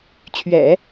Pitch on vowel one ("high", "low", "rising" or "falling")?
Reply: low